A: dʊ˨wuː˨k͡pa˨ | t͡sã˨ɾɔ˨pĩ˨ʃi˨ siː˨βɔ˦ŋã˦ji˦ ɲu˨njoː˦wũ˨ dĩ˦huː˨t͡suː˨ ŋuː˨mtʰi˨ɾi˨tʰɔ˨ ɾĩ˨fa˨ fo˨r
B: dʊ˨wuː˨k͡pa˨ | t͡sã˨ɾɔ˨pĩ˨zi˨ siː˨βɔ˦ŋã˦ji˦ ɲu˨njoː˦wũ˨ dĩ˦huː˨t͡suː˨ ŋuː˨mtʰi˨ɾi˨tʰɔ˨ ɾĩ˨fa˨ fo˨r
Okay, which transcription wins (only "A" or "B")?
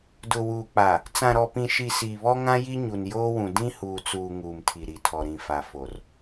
A